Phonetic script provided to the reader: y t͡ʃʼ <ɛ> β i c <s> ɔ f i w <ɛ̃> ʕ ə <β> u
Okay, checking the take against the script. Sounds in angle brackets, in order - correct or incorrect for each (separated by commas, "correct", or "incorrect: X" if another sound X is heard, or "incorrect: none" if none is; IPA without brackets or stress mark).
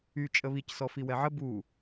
incorrect: ə, correct, incorrect: ɛ, incorrect: b